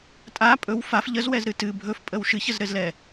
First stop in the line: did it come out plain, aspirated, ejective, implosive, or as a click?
ejective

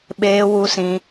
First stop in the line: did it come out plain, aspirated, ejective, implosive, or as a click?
implosive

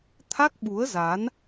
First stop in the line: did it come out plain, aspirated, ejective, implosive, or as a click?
aspirated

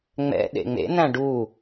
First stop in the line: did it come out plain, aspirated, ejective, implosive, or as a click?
implosive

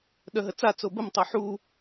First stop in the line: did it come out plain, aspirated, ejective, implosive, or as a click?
implosive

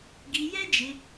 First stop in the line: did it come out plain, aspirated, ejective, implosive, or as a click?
plain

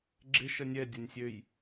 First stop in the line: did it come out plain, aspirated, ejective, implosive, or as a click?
click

